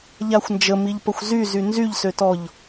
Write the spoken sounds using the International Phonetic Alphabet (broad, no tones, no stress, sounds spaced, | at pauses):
ʎ a xʷ n d͡ʒ ə m i ʎ p ə xʷ z y z y n z y ʎ s ø t ɔ ʎ